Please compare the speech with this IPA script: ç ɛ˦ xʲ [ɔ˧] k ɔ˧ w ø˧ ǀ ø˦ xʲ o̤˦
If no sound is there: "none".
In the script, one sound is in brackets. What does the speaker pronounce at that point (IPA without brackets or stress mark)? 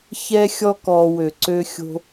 ɔ˦